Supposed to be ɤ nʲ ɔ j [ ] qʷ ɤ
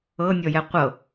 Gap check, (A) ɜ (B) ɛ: B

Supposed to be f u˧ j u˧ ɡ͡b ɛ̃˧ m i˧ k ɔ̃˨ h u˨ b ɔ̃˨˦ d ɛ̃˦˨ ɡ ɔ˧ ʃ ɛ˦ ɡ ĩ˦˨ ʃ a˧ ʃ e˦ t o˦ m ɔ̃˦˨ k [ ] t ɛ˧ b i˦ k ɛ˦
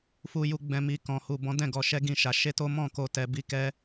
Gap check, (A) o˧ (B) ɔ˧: A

